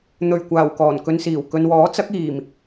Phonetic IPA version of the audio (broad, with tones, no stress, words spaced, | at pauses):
n̪ɵ˨˩ɥkʷaː˨˩w kɔː˨˩nkɵ˧nsiː˨˩w kɵ˨nwɔː˨˥t͡sɐ˨˥k̚iː˨˩m